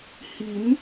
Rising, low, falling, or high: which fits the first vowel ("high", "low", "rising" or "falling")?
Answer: rising